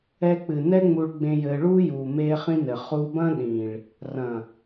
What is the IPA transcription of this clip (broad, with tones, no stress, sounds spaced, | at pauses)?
ɛ˧ k͡p ɨ˨ n ɛ˦ ŋ͡m u˧ ɭ ɡ͡b ẽ˧ j ɘː˧ ɭ uː˦ j uː˨ m eː˧ χ ĩ˧ n ɘ˨ χ u˧ b ɐ̃˦ ɗ ĩ˨ ɭ | r ɐ̃˨